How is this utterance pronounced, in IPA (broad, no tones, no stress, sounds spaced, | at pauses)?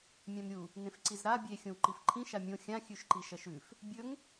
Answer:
mʲ ã m ɾʲ u | n ẽ f ǀ i z ɾ a bʲ e xʲ õ w ǃ i f ǃʰ ĩ ʃ a mʲ õ xʲ ã xʲ ʉ ʃ ǃ i ʃ ɐ ʃ ʉ f | bʲ ɵ ŋ